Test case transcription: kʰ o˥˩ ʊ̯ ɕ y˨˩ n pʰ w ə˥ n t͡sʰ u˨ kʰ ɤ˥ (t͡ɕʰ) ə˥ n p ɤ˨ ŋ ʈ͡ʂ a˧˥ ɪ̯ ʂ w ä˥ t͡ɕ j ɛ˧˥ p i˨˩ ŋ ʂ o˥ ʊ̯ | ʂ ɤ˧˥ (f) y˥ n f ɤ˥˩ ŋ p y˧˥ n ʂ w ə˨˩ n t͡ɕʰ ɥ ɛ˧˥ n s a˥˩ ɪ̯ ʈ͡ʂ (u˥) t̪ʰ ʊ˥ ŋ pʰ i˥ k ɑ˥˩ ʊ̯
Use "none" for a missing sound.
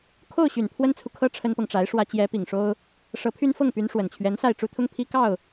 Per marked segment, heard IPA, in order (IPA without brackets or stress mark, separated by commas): ʈ͡ʂʰ, pʰ, u˥